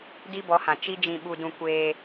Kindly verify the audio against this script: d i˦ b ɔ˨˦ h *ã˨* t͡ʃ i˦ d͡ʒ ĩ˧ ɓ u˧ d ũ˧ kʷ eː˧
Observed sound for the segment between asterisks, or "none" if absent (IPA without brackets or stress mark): ã˨